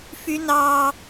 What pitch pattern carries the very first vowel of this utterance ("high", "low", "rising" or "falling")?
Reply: high